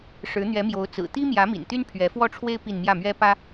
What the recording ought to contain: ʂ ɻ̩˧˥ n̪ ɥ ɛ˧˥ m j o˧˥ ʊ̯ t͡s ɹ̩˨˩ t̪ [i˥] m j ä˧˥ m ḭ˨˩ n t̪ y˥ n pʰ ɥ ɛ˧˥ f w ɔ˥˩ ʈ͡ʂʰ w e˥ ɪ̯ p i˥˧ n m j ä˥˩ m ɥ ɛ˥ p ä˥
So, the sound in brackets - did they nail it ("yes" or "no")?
yes